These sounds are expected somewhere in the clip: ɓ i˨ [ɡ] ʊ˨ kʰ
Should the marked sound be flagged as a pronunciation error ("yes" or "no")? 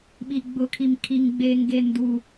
yes